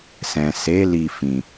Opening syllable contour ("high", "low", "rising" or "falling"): low